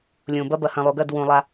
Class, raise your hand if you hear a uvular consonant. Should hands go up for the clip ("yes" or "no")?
no